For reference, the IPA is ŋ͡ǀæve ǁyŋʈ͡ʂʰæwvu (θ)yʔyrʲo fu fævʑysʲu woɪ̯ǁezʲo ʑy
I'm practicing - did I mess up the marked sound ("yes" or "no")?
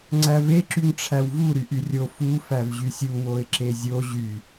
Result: yes